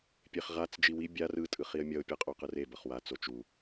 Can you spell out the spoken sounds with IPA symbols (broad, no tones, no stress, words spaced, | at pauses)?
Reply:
pʲeχʁat͡s d͡ʒiwi bʲar ɯ tʼɯχiə̯mʲʌʊ̯ pʲʌqʼoqɯre bʌχwa t͡sot͡ʃu